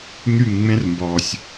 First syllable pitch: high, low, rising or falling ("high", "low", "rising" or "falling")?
falling